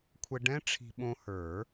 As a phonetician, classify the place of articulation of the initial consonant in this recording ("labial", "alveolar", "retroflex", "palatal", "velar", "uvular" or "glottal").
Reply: velar